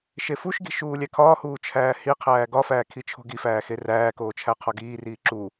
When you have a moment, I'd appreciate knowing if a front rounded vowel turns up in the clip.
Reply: no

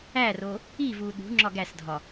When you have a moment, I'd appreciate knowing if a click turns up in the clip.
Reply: yes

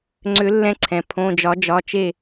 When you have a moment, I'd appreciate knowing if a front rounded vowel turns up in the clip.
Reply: yes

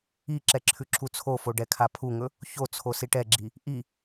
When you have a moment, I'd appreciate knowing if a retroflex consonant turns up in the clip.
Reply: yes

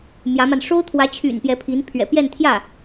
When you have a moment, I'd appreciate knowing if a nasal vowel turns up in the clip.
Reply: no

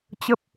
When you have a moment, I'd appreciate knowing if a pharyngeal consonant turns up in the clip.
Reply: no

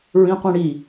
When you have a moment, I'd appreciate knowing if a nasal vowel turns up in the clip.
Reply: yes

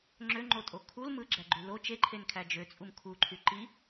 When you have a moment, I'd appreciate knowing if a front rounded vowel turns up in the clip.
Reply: yes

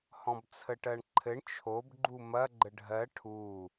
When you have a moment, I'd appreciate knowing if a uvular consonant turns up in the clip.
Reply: no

